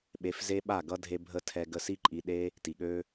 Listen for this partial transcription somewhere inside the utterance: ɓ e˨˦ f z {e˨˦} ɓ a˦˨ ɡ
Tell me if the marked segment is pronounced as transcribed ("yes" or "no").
no